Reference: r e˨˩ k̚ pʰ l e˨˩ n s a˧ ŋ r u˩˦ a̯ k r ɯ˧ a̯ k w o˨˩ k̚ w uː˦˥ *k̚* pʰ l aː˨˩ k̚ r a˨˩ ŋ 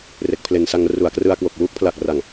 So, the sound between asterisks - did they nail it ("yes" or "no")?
yes